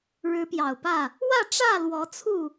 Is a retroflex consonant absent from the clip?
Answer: no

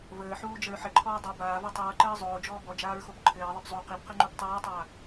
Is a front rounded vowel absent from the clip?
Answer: yes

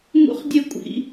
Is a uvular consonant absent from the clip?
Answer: no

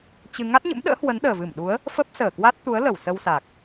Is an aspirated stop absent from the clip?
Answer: yes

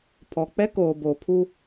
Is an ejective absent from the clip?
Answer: yes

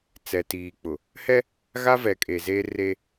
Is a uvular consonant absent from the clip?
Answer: yes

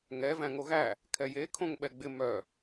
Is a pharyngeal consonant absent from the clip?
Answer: yes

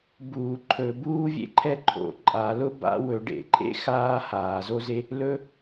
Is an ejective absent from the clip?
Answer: no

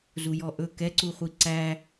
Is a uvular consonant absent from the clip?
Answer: no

